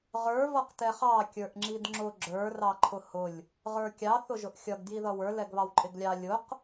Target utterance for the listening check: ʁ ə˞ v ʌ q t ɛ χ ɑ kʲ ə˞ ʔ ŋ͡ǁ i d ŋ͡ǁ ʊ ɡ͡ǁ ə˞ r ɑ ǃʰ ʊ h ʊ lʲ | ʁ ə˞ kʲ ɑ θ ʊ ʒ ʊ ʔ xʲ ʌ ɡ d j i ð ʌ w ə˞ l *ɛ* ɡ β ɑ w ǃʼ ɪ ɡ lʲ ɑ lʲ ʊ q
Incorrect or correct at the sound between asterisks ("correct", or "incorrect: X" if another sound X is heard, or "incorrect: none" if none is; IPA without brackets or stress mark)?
correct